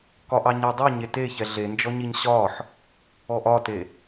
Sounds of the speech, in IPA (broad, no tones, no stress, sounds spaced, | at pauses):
k ɒ ʔ ɑ ɲ a dˤ i ɲ e t e ç ɛ ɮ e n d͡ʒ ɔ ɲ i ɲ ɕ ɒ ħ | ɔ ʔ ɒ t e